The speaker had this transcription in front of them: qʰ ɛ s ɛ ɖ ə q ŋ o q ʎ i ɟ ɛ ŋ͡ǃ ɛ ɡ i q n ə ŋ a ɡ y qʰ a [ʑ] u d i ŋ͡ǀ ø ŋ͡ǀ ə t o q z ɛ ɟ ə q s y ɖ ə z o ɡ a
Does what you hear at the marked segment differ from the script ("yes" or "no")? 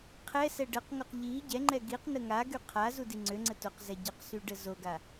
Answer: yes